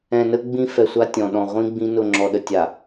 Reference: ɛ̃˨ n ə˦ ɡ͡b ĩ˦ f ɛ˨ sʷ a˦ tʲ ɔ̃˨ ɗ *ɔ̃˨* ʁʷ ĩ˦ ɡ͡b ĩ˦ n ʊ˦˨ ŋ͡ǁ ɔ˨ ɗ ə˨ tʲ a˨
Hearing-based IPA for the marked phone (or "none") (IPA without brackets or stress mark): ɔ̃˨